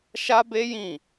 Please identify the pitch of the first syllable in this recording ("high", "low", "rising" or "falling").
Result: high